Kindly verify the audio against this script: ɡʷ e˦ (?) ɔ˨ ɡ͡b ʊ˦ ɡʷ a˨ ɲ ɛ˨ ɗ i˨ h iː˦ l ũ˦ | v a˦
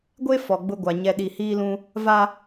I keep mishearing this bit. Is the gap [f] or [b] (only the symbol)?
f